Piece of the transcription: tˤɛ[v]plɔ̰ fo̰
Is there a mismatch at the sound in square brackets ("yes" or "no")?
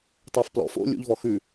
yes